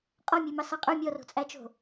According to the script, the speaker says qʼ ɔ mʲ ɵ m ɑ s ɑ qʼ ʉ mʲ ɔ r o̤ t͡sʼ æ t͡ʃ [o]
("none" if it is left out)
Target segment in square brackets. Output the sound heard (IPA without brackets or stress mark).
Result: o̤